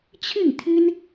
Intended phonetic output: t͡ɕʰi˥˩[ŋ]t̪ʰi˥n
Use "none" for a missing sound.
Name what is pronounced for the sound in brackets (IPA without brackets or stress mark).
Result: ŋ